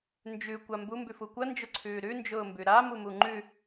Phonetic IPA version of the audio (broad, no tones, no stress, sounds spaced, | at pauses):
n d͡ʒ ʉ kʷ a m b u m b ʉ f u kʷ ɐ n d͡ʒ ʊ ǀʰ ʉː ɾ ʉ n d͡ʒ ʊː m b ʉ ɾ a m u m u ŋ͡ǃ ʉ